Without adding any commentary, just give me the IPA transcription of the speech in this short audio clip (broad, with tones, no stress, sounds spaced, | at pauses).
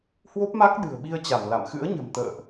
h w o˦˥ p̚ m a˦˥ k̚ ɗ ɨ̤˨˩ ə̯ ɓ i˧ ə̯ t͡ɕ a˧˩ m l a̰˧˨ m x ɨ̰˧˥ ə̯ ɲ ə̤˨˩ m t̪ ə̰ː˧˨ ʔ